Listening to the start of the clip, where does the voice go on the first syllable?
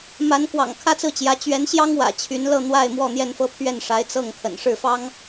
rising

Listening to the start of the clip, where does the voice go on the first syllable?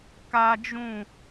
high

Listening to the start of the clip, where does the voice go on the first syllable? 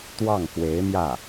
falling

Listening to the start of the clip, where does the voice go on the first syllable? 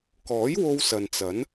rising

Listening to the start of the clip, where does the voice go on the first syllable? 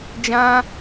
high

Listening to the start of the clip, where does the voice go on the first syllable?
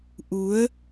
rising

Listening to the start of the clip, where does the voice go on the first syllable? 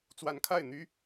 rising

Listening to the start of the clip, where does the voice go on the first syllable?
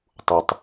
low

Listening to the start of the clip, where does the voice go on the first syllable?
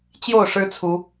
falling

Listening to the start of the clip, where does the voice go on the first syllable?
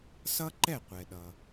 high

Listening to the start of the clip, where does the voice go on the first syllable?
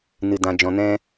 low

